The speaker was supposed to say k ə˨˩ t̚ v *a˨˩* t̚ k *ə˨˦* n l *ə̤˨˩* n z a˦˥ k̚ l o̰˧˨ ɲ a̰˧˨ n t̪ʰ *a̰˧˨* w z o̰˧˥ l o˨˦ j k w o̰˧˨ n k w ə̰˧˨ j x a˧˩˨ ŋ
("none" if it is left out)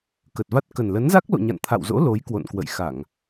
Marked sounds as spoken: a˦˥, ə˨˩, ə˨˦, a̰˧˨

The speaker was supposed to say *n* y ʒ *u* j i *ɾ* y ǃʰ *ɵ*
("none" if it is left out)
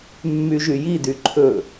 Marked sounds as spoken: mː, y, d, ɵ

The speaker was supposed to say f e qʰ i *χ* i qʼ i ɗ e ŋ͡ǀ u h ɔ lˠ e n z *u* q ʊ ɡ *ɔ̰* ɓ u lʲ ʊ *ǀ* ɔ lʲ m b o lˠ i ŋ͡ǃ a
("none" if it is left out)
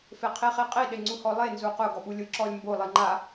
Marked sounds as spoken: χ, u, ɔ, ǁ

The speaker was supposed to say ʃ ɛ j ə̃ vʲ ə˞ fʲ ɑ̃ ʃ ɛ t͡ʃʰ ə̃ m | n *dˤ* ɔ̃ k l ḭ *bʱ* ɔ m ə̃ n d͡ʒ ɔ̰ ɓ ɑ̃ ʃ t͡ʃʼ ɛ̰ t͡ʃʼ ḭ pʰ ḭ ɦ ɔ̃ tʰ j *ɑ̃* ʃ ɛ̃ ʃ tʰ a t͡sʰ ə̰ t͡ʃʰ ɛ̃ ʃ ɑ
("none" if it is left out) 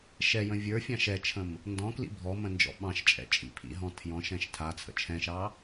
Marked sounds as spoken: d, bʱ, ɔ̃

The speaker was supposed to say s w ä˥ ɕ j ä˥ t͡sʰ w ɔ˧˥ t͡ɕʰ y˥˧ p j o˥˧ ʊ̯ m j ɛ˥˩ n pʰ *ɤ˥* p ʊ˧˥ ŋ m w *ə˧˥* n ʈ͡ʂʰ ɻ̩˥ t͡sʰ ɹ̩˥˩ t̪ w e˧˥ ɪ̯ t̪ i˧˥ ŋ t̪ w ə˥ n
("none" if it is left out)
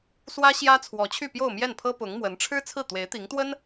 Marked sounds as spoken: ɤ˥, ə˧˥

